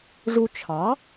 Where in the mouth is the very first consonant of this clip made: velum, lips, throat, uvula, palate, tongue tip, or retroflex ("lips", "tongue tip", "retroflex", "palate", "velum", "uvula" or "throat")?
retroflex